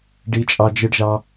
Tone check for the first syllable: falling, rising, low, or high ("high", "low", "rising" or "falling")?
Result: high